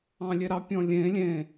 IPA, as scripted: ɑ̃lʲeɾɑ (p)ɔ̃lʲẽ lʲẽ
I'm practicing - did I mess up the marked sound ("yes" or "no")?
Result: yes